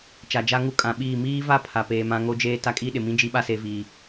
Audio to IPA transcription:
t͡ʃ a˨ d͡ʒ a˦ ŋ u˦ kʼ ã˨ ɓ iː˦˨ m iː˦ v a˦ pʰ a˨ p eː˨ m ã˨˦ ŋ o˦ d͡ʒ eː˦ t a˦ kʼ i˦ ɗ ɪ˨ m ĩ˦ d͡ʒ i˦ ɓ a˦ s e˨˦ v iː˨

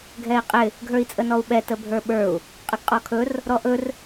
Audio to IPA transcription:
ɡʱ ɛ i̯ qʼ ɪ | ɡʱ ə˞ i̯ t͡sʼ ə n ɔ u̯ ɓ ɛ t ə bʱ ə˞ ɓ ə˞ u̯ | qʼ ə ɡ qʼ ɔ kʰ ɵ r | ɾ ɔ ʔ ɵ r

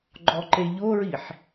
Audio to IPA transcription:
ɡ͡ǃ ɔ ǃ e ʎ o ɹ i ħ

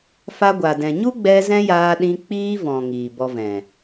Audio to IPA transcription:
f a˧ ɡʷ a˨ d ɛ̃˨ ɲ u˦ ɡ͡b ɛ˧ z ɛ̃˦ j aː˧ ɗ ĩ˧ k͡p iː˦ v ɔ̃˨ ŋ iː˨ b ɔ˧ v ɛ̃˨

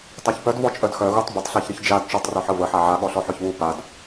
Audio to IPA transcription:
tˤ a ç p œ d v ɔ t͡ʃʼ œ d x œ ɣ u tˤ b ə tˤ ɬ a ç ɾ ə ç d͡ʒ a d t͡ʃ ɔ tˤ r œ ħ ə v ə ħ a ʕ a ɠ ɔ ɬ ɔ ħ œ ç β u p a d

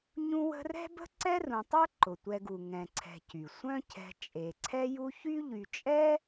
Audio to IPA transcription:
ɲ ũ˦ w ə̤˦ r ɛ̤˥ b ə̤˥ ǀ ɛ˥ r ũ˨ tˤ œ˥ ǃ ʊ˩ tʷ ɛ˨ ɡ u˩ ŋ ɛ̃˨ ǀʰ ɛ̤˨ c y˩ sʷ œ̃˦ cʰ ɛ̤˨ t͡ʃʼ e˩ ǀʰ ɛ˦ j u˦ ç y˥ ʎ y˨ t͡ʃʼ ɛ˥

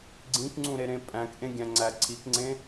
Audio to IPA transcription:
ɡ͡ǀ ĩ k ŋ͡ǀ ũ ɾ e ɾ ẽ pʼ æ̃ k ʔ ẽ ɡʲ æ̃ ŋ͡ǀ æ ǀʰ i k ŋ͡ǀ ẽ

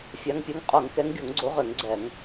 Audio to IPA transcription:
fʲ a˨˦ ŋ pʲ o˨˦ ŋ qʼ o˧˩˧ ŋ k ɛ˨˦ ŋ ɡʲ o˧˩˧ ŋ ɡ͡ǀ o˨˦ ʁ ø˧˩˧ ŋ ɡ͡ǀ ɛ˧˩˧ ŋ

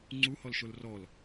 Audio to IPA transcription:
ŋ͡ǀ u h ɔ l ʃ o l r ɔ l

